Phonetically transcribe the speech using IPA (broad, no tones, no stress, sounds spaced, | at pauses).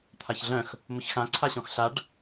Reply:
t̪ʰ a ç ɮ œ̃ x | m ʊ ç x ã ǀʰ a ɕ ɔ̃ x ɬ a ɖ